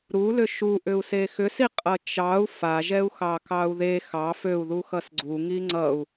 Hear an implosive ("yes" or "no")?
no